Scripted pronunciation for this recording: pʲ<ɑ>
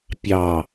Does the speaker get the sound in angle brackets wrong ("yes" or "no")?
no